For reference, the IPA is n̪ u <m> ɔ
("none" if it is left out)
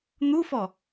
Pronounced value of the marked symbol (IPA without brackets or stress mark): f